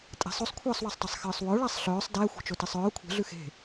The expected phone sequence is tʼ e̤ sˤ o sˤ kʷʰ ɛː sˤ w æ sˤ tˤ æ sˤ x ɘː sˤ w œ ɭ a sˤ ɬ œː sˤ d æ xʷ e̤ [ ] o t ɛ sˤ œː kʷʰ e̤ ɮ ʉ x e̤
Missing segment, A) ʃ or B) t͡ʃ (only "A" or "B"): B